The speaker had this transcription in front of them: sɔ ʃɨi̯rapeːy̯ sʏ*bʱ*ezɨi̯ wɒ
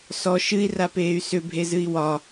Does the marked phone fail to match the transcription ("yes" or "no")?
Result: no